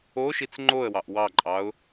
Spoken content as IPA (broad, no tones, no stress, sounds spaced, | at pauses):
o ʃ i t͡s ŋ͡ǃ o ə̯ w ɑ ʔ w ɑ ǃʼ ɑ ʊ̯